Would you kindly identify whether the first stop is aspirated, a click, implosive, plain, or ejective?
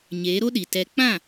implosive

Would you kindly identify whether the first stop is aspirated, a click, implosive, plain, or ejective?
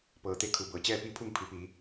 plain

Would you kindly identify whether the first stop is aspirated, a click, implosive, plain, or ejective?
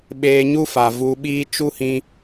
implosive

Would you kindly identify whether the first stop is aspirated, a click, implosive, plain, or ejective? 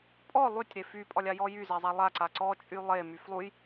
ejective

